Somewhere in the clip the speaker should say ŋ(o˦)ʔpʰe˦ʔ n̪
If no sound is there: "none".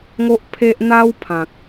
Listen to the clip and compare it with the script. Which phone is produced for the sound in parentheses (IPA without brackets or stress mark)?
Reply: o˦